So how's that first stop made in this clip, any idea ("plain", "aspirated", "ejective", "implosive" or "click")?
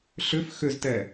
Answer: plain